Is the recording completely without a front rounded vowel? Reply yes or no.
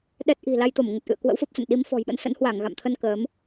yes